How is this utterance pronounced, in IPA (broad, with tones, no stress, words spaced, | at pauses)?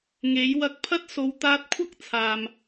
ŋe˨˥j wɐ˧k̚pʰɐ˥t̚ so˨˧wt̪aː˧t̚kʷʰɐ˥k̚ t͡sʰaː˨m